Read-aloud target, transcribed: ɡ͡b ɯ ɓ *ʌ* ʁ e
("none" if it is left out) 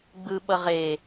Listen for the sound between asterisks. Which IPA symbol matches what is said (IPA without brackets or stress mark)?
ʌ